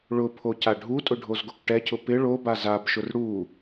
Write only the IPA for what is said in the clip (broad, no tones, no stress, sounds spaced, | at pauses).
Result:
ɭ ʊ pʰ o c a ɖʱ u tʼ ʊ ɖʱ o z ɡ o k ʈ ɛ cʰ ʊ p ɪ ɭ o b a z a b ʃ ʊ r ɽ u